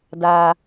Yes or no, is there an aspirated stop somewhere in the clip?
no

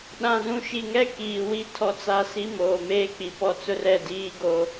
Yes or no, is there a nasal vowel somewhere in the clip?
yes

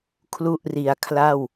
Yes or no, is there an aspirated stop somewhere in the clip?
yes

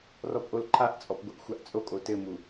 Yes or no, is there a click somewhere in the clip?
yes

